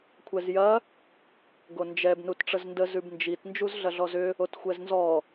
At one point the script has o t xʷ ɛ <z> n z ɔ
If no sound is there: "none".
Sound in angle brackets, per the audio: z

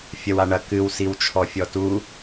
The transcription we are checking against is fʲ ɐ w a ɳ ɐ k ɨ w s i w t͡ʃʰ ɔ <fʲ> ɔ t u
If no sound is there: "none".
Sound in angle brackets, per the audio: fʲ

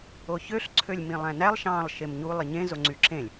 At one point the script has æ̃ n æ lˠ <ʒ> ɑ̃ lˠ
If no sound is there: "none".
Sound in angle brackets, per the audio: ʃ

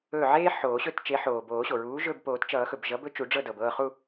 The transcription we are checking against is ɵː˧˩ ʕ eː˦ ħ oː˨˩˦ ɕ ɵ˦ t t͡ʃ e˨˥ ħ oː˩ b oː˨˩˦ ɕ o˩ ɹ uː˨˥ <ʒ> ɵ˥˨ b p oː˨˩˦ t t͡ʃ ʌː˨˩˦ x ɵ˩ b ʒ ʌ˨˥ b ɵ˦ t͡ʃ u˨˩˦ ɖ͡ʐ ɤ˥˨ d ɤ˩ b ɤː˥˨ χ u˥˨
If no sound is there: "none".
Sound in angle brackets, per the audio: ʒ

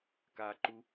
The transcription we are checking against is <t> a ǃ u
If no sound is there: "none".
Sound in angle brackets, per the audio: k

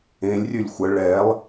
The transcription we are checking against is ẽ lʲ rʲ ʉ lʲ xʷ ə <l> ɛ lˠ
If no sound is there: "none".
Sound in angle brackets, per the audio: ɭ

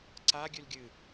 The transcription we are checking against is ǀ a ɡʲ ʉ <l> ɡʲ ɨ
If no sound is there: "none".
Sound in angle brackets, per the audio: l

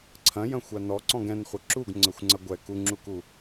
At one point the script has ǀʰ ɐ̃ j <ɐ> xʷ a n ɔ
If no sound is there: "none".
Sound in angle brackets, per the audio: ɐ̃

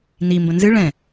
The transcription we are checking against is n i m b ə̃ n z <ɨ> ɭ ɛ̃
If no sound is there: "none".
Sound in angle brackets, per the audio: ɨ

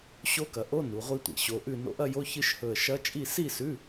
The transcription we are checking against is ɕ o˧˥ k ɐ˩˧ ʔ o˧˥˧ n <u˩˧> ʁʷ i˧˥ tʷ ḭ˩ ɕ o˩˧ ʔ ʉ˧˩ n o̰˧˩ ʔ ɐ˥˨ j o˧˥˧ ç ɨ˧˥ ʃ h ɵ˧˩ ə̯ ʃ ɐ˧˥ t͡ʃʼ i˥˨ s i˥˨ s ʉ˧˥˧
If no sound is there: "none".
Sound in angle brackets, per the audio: u˩˧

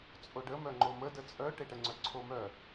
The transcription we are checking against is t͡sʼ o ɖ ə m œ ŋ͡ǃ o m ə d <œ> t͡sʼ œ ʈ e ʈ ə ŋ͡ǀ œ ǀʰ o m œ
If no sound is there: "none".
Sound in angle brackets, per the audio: ə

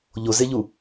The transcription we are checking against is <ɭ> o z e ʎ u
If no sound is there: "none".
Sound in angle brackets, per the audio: ʎ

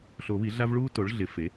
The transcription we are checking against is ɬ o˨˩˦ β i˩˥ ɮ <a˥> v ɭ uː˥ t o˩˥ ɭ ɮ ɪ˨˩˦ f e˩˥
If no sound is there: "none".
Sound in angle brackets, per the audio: a˥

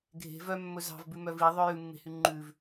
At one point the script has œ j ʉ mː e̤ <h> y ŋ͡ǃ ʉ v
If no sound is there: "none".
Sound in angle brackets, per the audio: h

